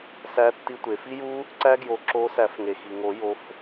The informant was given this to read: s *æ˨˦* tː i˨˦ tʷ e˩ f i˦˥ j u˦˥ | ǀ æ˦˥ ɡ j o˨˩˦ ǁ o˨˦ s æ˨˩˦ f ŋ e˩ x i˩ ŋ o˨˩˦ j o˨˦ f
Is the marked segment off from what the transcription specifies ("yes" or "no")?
no